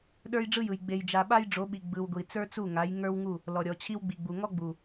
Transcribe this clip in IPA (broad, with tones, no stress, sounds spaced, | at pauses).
ɗ ə˞˦ j ɖ͡ʐ ɯ˦ j ɯ˨ j ɡ͡b e˨ j d͡ʒ a˨ ɓ a˦ j ɖ͡ʐ o˨˦ ɓ i˨ ɡ͡b ɯ˨ w ɡʷ i˨ t͡s ə˞˦ t͡s u˦˨ ŋ a˨˦ j ŋ ə˞˦ w ŋ u˦˨ | l ɔ˨ ɾʲ ɔ˨ t͡ɕʰ i˦ w ɡ͡b i˨ ɡ͡b u˨ ŋ ɔ˦ ɡ͡b u˨